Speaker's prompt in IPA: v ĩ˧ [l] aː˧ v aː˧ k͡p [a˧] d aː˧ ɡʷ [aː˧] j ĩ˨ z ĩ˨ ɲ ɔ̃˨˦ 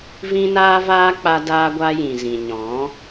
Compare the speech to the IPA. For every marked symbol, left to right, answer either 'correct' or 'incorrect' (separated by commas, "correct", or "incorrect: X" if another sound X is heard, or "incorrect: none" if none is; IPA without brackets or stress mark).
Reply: incorrect: n, correct, incorrect: a˧